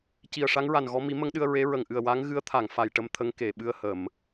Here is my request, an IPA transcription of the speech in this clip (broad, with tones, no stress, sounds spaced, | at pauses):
c i˨˩ ə̯ ʂ a˧˥ ŋ ɹ a˨˩ n ɣ ɔ˧ m i˨˩˦ m ə˧˥ ŋ ɗ ɨ˧ ə̯ ɹ e˧˥ ɹ ə˨˩ ŋ ʔ ɨ˨˩ ə̯ w a˧˥ ŋ ɣ ɨ˧˥ ə̯ t̪ʰ a˨˩˨ ŋ f a˨˩ j ʈ ə˧ m t̪ʰ ə˧ ŋ k e˨˩˨ ɓ ɨ˧ ə̯ h ə˨˩˨ m